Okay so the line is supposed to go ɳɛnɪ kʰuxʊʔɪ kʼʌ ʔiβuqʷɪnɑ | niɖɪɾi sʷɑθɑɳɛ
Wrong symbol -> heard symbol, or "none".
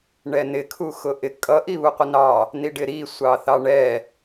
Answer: none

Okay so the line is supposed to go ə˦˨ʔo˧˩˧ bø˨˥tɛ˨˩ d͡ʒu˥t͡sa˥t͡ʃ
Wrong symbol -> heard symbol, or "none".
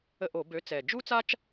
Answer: t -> t͡s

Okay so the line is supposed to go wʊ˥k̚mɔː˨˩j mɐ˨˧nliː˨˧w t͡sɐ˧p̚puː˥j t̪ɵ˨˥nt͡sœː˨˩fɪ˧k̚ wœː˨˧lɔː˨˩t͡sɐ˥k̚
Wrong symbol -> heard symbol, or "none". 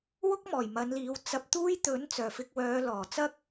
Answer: p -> t̪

